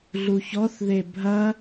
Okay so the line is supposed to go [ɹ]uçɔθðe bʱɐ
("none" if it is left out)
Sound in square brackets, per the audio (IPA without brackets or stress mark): ɮ